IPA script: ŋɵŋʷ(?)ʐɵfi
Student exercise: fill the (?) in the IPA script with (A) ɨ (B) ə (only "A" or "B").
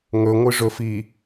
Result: A